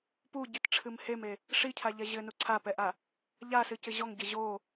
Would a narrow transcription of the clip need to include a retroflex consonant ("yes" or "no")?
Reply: yes